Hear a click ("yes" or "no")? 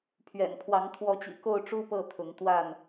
no